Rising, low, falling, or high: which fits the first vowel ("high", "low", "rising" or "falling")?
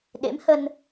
rising